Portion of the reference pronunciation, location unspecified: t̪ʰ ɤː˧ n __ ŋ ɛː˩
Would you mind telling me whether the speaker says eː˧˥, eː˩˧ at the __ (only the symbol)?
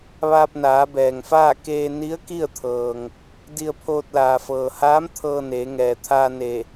eː˩˧